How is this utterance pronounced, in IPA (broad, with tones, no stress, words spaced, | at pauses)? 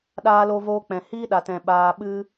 ɗaː˧lo˧voː˧k͡pɛ̃˨ hiː˦ɗa˨tɛ̃˨ ɓaː˧ɓɨ˦